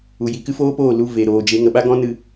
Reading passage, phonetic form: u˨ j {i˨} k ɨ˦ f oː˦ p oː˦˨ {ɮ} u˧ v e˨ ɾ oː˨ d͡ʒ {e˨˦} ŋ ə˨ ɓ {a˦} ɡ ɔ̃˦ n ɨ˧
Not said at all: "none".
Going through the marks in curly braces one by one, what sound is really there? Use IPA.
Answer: i˨, l, e˨˦, a˦

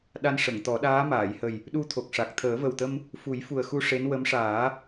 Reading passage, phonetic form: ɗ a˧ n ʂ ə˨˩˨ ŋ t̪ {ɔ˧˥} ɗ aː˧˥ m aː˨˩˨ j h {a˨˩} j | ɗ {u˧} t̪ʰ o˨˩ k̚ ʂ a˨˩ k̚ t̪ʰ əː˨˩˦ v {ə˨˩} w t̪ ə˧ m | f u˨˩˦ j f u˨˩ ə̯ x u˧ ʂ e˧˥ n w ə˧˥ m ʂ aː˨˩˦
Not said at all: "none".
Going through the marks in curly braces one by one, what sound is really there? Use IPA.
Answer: ɔ˨˩˦, ə˨˩, u˧, ə˨˩

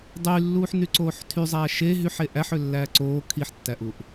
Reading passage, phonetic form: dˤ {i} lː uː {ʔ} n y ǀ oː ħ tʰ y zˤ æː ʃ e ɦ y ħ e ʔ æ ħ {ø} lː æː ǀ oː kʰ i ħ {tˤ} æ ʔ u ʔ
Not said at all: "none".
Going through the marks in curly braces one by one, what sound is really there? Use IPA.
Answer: y, ħ, ø, tː

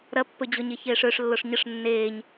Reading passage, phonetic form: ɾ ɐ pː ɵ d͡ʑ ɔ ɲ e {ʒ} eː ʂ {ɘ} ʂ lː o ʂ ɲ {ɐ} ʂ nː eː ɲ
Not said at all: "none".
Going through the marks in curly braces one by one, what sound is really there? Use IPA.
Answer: ç, ø, ə

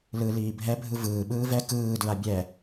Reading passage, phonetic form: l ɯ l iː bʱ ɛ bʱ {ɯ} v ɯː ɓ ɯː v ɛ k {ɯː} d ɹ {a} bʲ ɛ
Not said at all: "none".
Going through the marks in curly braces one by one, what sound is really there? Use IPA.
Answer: ɯ, ɯː, a

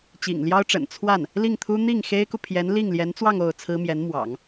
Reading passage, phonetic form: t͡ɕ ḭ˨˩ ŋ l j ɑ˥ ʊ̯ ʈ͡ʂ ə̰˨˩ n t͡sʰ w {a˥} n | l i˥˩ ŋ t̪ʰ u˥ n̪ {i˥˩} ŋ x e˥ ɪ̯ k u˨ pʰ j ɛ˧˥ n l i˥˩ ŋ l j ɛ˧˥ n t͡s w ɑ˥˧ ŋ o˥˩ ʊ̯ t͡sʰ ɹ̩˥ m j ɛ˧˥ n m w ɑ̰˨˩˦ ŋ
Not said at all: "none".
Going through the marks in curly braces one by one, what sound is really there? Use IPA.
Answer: a˥˩, i˥˩

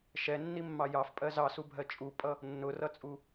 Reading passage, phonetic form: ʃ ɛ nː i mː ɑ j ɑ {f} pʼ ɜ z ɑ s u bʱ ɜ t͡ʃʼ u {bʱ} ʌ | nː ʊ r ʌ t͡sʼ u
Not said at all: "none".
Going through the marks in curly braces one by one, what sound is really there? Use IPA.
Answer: f, pʼ

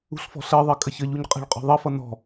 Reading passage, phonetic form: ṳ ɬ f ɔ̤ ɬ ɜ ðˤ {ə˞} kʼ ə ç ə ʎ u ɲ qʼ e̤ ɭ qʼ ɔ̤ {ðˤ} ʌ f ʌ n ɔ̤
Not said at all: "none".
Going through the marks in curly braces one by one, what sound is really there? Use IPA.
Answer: ɜ, ðˤ

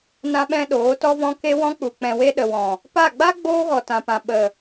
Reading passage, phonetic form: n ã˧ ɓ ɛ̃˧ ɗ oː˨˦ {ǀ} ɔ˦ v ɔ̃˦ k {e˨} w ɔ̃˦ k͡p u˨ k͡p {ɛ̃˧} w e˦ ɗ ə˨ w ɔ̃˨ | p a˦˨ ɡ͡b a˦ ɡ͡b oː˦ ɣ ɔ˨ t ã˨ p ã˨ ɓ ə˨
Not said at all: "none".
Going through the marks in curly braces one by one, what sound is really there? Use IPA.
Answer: t, e˦, ɛ̃˧

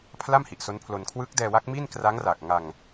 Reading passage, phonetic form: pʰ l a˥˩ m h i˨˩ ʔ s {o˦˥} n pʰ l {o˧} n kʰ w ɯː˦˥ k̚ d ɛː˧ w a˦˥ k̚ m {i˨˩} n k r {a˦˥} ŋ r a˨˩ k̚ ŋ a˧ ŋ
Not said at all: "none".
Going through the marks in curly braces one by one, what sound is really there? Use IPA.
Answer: o˦˥, o˧, i˥˩, a˦˥

